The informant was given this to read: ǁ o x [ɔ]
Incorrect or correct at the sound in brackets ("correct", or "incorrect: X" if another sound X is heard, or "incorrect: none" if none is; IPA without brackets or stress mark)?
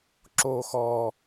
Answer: correct